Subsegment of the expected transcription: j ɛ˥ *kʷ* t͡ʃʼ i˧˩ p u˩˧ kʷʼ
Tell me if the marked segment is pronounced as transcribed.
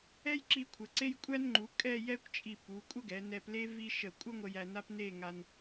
yes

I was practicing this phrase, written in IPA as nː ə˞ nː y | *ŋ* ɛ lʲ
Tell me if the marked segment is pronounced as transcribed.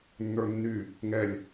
yes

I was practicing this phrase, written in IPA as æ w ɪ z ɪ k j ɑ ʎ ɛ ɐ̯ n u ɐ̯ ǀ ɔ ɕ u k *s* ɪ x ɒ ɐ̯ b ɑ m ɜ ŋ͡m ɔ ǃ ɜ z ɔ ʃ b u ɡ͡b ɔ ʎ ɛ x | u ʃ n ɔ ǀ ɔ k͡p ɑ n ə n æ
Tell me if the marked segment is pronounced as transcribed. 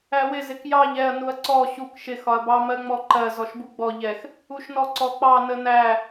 no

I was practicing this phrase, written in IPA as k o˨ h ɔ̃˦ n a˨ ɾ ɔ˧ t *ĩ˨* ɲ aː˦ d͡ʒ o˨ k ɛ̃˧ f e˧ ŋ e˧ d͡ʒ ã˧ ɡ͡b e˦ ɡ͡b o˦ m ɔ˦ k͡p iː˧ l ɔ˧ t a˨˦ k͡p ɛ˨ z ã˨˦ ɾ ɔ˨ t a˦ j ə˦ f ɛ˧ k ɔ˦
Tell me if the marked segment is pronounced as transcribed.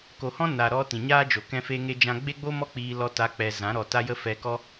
yes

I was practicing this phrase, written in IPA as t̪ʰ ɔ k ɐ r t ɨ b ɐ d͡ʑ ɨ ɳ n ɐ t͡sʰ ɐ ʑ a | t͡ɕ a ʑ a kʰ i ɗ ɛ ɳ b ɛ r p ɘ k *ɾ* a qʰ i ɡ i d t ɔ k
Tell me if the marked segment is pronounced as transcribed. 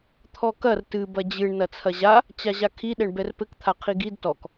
no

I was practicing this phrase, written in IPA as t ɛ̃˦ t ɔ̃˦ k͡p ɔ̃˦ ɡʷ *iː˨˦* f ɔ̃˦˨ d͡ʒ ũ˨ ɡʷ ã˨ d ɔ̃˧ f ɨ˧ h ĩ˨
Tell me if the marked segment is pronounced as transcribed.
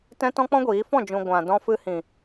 yes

